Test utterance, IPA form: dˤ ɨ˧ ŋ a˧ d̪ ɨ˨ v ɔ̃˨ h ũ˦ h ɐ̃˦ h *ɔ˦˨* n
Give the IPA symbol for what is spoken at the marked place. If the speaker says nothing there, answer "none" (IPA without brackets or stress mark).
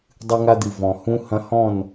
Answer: ɔ̃˦˨